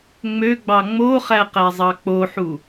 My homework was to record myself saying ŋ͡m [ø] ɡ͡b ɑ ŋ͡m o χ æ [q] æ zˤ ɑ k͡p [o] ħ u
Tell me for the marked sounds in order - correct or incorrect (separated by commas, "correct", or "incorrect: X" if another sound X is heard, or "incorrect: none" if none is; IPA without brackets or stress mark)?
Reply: correct, correct, correct